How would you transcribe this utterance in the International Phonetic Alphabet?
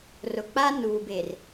r ʊ˨ k͡p a˦ n uː˨ b e˨ r

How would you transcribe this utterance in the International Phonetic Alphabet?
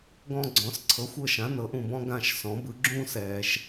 ɡ ɔ̃˦ ɡ͡ǀ ɔ̃˩˧ s ǀʰ ɤ˩˧ xʷ ɤ˧˩ ʃ ã˩˧ n ɤ˩˧ ʔ ũ˩ b ɔ̃˦ ɡ ã˧˩ ʃ s ɔ̃˩˧ b ɯ˩˧ ɡ͡ǁ ũː˦ s ɛː˩ ʃ

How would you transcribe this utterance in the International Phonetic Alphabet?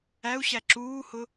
æ u̯ ɕ æ ǁ uː h ʊ

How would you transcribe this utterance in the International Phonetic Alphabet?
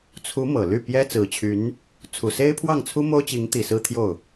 t͡sʰ u˧˥ m ɤ˨˩ l y˥˩ p j ɛ˥ t͡s ɹ̩˨˩ t͡ɕʰ y˧˥ n | t͡sʰ u˨˩ s e˥ ɪ̯ pʰ w ɑ˥˩ ŋ t͡sʰ u˥ m o˥ ʊ̯ t͡ɕ i˧˥ ŋ t̪ i˨˩ s ɹ̩˥ t̪ʰ j o˥˩ ʊ̯

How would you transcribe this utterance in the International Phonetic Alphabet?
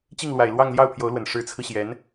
t͡ɕ i˥˩ ŋ l w a˨˩ ɪ̯ l w ɑ˥˧ ŋ l j ɑ˥˩ ʊ̯ pʰ j o˧˥ ʊ̯ l w ə˨˩ n ʂ ɻ̩˧˥ t͡sʰ ɹ̩˧ ɕ j ɛ˧˥ n

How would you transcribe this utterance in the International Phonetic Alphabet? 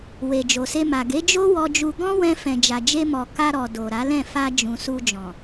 w e˨ d͡ʒ o˨ s e˧ m a˨ ɡ e˨˦ d͡ʒ o˦ w ɔ˧ d͡ʒ u˧ ɡ ɔ̃˦ w ɛ̃˧ f ɛ̃˨ d͡ʒ a˨ d͡ʒ e˧ m ɔ˨ k a˧ ɾ ɔ˨ d o˨ ɾ a˨˦ l ɛ̃˦˨ f a˧ d͡ʒ ũ˨ s u˧ d͡ʒ ɔ̃˨

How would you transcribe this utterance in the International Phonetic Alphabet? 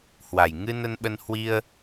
h w a˨˩ j ŋ ɨ˧ n ə˧ n ɓ ə˧ n h w i˧ ə̯

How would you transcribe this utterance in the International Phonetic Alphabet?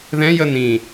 ð ɛ̃ j ə n ĩ

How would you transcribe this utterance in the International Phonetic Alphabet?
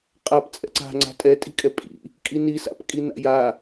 qʼ a p t͡sʼ ɛ̰ ǀ a̤ ŋ͡ǀ a̤ tʼ ɛ tʼ i̤ kʼ ɛ pʼ ḭ | kʼ i n i s a̰ p kʼ i n a̰ j a

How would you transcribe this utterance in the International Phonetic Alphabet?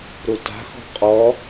ɾ u t a̤ x ɔ̤ qʼ ɔ

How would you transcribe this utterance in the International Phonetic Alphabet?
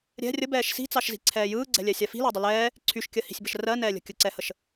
ɾʲ ɛ̤ rʲ ə b ɛː ʃ s i̤ t͡s ɑ ʃ z i̤ ǀʰ ɛː j ɯː ɡ͡ǀ ɛ̤ lʲ ɛ sʲ a f i̤ l ɜ dˤ ə l ɛː | ǀʰ y ʃ kʲ ɜ h i̤ sʲ b ə ʃ r ɜ n ɛː lʲ ə̤ kʲ ə ǀ ɛ h ə ʃ

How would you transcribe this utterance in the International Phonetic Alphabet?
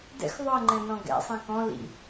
d ɛ̰ x ðˤ o ə̯ ŋ͡ǃ ɛ̃ n ɔ̃ ɡ ɛ̰ sˤ ĩ k ɔ̃ l ḭ

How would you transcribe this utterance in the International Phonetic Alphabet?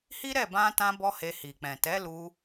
h i˦ ɾ ɛ˦˨ b ã˧ t ã˧ b ɔ˦ h e˧ h i˨ k͡p ɛ̃˨ t ɛ˨˦ l u˧

